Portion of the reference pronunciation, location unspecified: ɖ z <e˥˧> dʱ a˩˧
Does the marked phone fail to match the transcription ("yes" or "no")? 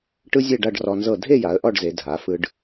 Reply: yes